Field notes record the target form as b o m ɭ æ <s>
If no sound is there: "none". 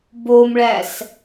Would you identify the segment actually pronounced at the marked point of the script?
s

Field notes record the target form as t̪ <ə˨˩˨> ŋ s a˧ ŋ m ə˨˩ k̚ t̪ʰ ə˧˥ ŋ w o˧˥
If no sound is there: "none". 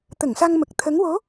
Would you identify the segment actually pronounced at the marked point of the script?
ə˨˩˨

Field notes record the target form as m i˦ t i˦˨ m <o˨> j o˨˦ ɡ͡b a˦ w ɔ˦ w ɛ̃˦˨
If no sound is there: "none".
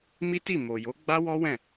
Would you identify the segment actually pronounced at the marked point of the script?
o˨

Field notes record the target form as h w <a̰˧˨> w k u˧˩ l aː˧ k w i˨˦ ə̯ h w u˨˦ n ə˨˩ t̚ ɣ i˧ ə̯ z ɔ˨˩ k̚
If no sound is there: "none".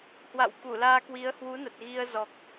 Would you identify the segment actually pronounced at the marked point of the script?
a̰˧˨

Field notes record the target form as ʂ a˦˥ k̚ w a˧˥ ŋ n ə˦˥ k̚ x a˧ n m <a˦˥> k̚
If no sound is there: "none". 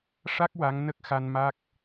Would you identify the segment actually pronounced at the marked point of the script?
a˦˥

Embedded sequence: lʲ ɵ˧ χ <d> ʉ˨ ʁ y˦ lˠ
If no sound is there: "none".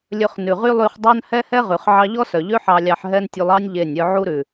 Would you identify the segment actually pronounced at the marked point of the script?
n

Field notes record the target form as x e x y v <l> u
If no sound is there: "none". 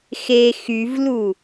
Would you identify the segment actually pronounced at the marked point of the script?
l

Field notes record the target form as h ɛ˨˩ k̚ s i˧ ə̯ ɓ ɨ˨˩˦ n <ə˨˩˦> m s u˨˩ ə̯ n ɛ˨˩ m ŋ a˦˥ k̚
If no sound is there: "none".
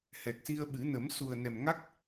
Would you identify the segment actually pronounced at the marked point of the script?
ə˨˩˦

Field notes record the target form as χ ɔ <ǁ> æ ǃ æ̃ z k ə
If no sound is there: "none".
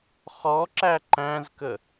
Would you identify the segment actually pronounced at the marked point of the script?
ǁ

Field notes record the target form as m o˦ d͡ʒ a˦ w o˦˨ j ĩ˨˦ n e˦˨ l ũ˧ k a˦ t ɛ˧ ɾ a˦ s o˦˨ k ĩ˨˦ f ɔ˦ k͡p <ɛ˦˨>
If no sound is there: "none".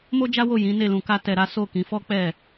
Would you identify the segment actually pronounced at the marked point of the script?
ɛ˦˨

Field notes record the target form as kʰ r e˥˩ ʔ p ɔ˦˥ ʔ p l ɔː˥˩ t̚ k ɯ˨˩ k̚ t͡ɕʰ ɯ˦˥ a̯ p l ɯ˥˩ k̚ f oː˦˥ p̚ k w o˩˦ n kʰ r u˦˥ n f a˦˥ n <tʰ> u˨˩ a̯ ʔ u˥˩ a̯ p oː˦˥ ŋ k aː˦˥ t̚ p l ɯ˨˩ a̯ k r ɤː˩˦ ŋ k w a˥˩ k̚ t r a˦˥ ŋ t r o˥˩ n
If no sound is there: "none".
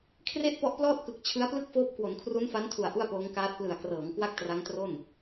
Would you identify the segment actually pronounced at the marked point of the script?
tʰ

